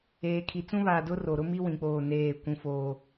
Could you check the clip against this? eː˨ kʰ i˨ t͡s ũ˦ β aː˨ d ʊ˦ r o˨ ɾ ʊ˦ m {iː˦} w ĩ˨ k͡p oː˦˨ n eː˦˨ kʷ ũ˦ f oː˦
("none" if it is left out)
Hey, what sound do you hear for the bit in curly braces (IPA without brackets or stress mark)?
i˦